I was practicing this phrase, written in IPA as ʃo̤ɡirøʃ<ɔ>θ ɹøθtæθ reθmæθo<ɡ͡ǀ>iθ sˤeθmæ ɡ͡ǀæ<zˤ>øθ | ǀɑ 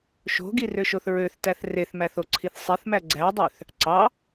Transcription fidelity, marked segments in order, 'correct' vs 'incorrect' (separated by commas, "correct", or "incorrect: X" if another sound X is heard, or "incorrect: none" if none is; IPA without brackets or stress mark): incorrect: o, incorrect: ǀʰ, incorrect: dˤ